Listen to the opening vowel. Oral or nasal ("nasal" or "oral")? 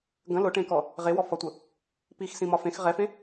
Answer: nasal